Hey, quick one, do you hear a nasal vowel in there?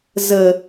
no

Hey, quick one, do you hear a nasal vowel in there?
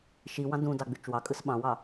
yes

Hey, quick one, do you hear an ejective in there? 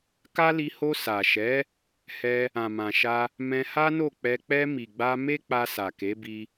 no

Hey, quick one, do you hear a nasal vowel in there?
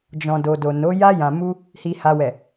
yes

